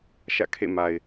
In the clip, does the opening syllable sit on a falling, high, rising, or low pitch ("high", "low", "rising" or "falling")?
falling